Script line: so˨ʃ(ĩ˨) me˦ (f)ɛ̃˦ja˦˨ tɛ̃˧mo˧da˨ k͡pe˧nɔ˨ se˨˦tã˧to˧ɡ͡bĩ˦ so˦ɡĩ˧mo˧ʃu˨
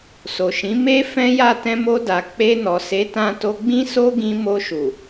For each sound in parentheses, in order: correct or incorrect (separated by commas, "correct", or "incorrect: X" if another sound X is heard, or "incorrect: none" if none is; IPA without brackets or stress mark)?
incorrect: ĩ˨˦, correct